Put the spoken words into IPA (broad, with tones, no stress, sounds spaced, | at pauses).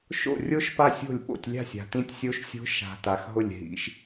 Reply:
ʃ o̰˦˨ rʲ o˦˥ ʃ p a˦˨ sʲ o̤˦˨ lʲ ɓ o̰˦˨ tʲ lʲ a̤˦˨ sʲ a̤˨ t ĩ˦˥ tʲ sʲ o˦˥ ʃ sʲ o̤˦˥ ʃ a̤˨ t a˨ x ɦ ʊ˦˨ lʲ ɦ ḭ˦˥ ʃ